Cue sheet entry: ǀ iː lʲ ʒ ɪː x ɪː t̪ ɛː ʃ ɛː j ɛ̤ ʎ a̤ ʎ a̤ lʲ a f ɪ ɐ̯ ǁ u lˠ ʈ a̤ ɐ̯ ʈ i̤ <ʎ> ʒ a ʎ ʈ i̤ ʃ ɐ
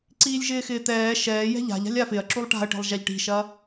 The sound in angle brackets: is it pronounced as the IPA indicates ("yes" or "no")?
no